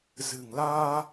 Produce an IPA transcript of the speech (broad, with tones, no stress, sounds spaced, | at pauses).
z ɨ̤˨˩ ŋ l aː˧